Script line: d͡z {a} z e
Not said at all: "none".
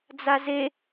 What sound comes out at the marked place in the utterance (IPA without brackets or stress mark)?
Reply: a